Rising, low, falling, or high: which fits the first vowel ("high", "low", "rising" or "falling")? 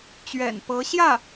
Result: low